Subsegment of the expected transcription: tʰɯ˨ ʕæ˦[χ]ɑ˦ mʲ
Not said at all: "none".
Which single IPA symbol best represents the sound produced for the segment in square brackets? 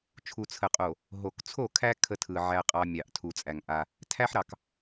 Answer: qʼ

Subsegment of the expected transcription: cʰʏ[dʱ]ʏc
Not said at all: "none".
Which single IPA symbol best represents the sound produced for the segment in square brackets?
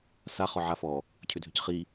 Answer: dʱ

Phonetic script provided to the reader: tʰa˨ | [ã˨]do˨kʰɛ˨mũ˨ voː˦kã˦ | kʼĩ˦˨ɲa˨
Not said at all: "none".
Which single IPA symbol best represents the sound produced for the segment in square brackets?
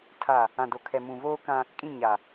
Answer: ã˨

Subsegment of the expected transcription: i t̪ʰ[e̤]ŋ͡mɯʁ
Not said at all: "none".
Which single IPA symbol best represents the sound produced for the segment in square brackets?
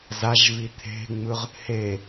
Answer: e̤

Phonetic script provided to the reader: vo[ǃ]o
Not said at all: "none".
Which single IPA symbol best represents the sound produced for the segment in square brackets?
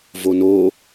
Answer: n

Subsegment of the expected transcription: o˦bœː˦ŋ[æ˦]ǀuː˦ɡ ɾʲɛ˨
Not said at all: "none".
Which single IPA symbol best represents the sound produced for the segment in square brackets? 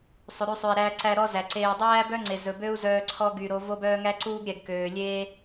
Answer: æ˦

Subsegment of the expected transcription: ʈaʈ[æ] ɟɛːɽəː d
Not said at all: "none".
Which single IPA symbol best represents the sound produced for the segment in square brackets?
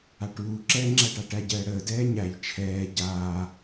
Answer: æ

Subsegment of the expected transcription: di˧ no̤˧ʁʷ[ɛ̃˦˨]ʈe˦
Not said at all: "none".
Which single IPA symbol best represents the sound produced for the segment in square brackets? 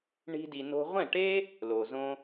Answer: ɛ̃˦˨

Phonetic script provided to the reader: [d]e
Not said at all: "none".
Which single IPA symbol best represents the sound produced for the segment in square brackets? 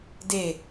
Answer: d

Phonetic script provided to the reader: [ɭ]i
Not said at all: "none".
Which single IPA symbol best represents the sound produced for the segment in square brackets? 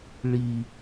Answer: ɭ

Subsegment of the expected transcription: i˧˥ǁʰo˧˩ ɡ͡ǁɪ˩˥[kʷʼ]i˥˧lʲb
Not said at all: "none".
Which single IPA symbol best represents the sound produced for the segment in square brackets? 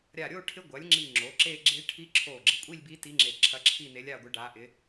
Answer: kʷʼ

